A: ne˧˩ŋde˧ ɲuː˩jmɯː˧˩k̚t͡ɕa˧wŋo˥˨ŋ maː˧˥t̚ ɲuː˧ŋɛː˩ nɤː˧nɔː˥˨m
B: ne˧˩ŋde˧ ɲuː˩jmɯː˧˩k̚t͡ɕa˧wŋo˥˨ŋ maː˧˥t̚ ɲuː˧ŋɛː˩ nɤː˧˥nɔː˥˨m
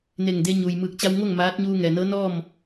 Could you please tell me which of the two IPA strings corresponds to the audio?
B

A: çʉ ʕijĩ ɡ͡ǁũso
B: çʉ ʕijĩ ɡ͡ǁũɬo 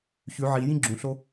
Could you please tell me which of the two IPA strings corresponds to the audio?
B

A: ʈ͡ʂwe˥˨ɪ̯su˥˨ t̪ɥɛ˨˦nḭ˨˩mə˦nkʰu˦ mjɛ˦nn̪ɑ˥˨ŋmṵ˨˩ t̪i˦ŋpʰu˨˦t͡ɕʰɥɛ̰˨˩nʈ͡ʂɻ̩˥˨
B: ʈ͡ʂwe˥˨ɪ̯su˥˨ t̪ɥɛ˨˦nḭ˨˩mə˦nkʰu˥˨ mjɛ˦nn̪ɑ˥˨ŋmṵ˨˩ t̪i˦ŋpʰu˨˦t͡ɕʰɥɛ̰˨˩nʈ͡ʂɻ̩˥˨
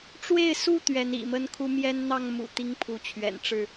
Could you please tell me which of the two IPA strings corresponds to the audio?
A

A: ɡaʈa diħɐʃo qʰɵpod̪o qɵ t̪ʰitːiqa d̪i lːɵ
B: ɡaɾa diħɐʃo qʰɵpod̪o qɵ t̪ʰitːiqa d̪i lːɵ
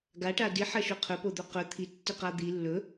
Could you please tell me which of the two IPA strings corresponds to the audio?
A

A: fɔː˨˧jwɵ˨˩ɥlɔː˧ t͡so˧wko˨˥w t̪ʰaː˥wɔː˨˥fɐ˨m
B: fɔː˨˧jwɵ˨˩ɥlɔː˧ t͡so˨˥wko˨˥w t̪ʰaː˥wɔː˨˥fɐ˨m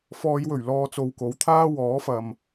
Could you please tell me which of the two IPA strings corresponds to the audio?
A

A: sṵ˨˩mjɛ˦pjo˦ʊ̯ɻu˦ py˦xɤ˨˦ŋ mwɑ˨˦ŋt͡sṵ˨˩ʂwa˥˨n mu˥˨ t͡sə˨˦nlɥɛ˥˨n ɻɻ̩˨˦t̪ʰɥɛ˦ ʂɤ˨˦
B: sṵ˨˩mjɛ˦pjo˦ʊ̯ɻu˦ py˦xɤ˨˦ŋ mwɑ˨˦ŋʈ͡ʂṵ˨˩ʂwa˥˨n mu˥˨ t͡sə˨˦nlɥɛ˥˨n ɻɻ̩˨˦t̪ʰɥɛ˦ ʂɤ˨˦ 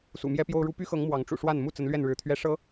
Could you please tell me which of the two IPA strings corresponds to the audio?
B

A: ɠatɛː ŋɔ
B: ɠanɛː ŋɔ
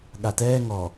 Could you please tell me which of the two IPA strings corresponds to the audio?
A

